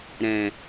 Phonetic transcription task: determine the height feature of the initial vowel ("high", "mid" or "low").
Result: mid